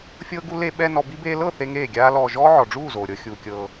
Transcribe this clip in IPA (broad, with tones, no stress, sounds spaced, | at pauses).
fʲ ɤː˦ ɡ u˦ l e˧ ɓ ɛ˧ n ɔ˧ b i˦ b eː˦ l ɤ˦˨ θ e˦ ŋ eː˦˨ ɡʲ aː˦ l ɔː˧ ʒ ɔː˦ ʕ ɔ˨ ɖ͡ʐ uː˦˨ z oː˨ ɾʲ ɤ˧ xʲ uː˨ kʲ ɤː˧